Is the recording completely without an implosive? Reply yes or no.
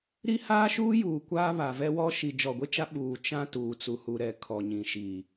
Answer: no